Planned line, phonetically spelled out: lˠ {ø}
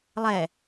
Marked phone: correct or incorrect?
incorrect